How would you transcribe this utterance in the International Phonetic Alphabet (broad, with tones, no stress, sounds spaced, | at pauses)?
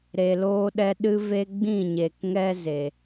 ɾ e˨ l oː˧ ɗ ɛ˧ ɗ ɨ˦ v e˦ ɡ͡b ĩ˦˨ ɲ e˨ k ŋ ɛ˦ z e˨